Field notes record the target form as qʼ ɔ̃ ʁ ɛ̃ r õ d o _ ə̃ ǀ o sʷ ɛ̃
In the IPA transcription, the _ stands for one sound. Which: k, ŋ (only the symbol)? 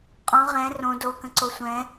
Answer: k